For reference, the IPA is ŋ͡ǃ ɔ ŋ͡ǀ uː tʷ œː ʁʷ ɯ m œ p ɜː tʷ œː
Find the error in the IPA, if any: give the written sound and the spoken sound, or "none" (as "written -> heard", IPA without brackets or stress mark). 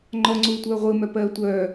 none